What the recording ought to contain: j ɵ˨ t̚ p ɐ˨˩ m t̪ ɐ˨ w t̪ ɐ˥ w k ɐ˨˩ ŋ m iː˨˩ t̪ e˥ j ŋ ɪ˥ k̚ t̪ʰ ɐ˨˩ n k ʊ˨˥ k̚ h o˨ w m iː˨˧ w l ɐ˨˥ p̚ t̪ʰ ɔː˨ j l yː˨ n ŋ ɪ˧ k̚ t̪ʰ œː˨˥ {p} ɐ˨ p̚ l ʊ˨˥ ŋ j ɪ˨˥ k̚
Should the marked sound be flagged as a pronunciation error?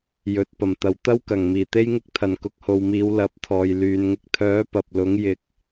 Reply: no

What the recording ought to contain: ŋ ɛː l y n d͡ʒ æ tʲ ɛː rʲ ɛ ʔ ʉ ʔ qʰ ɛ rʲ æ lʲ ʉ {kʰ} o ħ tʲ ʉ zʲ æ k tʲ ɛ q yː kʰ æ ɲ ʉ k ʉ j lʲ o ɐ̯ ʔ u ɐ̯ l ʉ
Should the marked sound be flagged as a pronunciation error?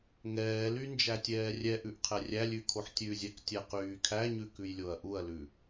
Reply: no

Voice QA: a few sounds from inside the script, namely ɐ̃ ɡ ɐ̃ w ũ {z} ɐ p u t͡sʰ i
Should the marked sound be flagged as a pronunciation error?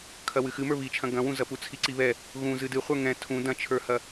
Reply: no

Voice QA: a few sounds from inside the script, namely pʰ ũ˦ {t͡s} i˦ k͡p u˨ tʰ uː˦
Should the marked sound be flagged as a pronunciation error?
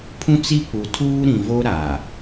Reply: no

